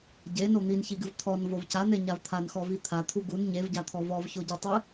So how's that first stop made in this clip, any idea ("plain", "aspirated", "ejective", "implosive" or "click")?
plain